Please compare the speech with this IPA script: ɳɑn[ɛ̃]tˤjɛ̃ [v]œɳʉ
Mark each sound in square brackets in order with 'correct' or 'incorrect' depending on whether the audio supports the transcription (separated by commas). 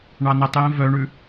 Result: incorrect, correct